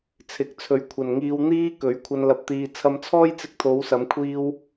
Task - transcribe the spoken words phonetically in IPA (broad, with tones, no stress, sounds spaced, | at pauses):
t͡sʰ ɪ˨˥ k̚ t͡sʰ ɵ˨ ɥ kʷʰ ɐ˨ n ŋ iː˧ w n̪ iː˧ k ɵ˨˥ ɥ kʷʰ ɐ˧ n l ɐ˧ p̚ t̪ iː˨ t͡sʰ ɐ˧ m t͡sʰ ɔː˥ j t͡s ɪ˧ k̚ t̪ʰ o˨˧ w s ɐ˨˧ m kʷʰ iː˧ w